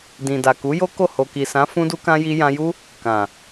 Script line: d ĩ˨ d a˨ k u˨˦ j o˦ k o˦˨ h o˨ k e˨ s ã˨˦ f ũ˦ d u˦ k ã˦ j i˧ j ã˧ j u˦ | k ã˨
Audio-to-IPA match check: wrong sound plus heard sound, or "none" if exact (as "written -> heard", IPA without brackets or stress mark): e˨ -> i˨